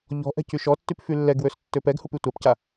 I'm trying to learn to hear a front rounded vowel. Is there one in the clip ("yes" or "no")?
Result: yes